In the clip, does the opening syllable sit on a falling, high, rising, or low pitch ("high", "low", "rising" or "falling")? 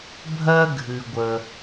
high